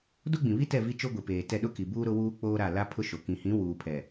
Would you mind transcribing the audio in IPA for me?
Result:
do˦ɡ͡bĩ˨βi˦tɛ˦˨ vi˦t͡ʃo˦ɡʷi˨peː˨ tɛ˦˨ɗʊ˦ki˨buː˦ ɾʊ˦wuː˦ k͡poː˦ɾa˦˨ la˦pʰʊ˦ʃo˨ kĩ˨ hĩ˨˦ wuː˨pʰɛ˨

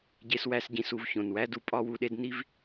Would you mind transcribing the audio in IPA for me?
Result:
ɟe˧swæ˧s ɟĩ˧s u˧vçõ˨nwæ˦du˧ pʼɒ˦wu˧ɗe˦d ni˦v

